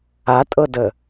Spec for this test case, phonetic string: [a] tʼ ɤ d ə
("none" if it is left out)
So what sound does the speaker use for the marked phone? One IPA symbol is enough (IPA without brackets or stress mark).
a